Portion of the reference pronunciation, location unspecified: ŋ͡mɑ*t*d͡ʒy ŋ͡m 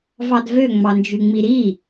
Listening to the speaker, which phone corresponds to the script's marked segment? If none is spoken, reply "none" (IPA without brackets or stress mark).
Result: n